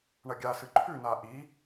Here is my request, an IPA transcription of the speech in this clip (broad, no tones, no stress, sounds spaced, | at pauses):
ɳ ɐ ɡʲ a s ɨ ǃʰ ʉ n a ʔ i